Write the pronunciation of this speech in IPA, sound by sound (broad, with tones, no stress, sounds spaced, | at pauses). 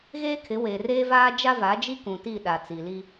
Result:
ɣ eː˦ kʰ ɪ˨˦ w e˨ r eː˦ v aː˦ d͡ʒ a˦ v a˨˦ d͡ʒ i˦ k ũ˨ t i˦˨ ɗ a˨ t͡s i˨ l i˦